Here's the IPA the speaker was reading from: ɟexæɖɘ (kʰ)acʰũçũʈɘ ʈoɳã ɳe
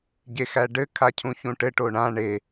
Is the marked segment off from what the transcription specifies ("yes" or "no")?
no